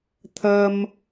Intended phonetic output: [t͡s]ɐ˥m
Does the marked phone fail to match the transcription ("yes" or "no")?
yes